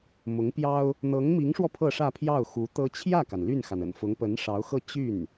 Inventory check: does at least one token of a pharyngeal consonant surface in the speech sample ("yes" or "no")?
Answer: no